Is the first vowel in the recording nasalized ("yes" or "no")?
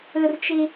no